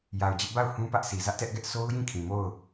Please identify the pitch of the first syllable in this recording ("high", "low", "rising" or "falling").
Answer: low